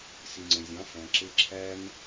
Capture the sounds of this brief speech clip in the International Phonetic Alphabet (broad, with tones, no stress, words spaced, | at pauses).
si˨ŋ͡ǀə̃˨zʲɑ̃˨˦ fæ̃˨ǁɪ˧ ǁʰæ˦m